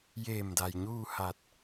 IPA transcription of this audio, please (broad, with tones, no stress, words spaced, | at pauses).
jeː˧˩mda˩j ɲuː˥˨ha˧˩t̚